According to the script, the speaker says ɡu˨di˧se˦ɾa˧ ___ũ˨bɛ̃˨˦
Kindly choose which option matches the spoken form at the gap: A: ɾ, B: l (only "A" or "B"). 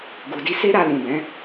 B